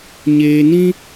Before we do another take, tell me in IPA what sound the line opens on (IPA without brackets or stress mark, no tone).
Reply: ɲ